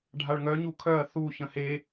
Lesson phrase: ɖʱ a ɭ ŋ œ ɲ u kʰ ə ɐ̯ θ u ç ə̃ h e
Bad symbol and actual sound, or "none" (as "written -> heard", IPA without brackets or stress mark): ə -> œ